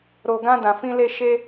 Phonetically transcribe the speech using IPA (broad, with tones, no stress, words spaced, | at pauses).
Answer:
ɾo˨ɡã˧ dã˨fĩ˧le˧ ʃe˧